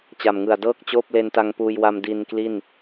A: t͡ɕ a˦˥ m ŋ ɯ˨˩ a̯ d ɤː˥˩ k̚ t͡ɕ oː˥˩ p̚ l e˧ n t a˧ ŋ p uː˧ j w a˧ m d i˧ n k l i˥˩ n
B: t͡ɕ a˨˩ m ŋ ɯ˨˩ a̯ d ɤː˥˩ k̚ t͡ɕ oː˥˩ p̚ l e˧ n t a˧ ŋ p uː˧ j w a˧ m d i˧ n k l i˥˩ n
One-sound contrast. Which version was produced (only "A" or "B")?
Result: B